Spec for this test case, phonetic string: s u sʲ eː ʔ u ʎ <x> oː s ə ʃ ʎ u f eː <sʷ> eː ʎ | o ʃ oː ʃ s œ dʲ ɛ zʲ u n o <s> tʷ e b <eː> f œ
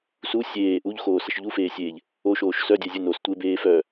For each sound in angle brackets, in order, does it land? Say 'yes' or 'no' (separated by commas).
yes, no, yes, yes